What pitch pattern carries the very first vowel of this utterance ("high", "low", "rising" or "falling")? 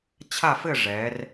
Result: falling